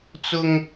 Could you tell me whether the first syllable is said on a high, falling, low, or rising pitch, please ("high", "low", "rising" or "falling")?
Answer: high